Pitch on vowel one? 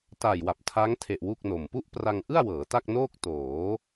low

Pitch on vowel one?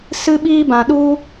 high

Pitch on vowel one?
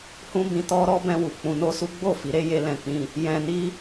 high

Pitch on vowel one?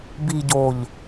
low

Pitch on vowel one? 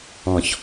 low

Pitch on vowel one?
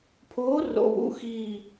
rising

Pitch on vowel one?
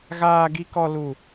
high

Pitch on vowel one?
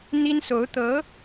high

